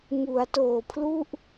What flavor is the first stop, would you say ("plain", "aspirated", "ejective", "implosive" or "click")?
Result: plain